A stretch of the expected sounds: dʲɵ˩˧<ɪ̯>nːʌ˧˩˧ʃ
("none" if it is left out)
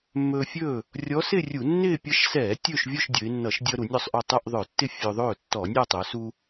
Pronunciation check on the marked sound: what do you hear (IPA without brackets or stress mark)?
ɪ̯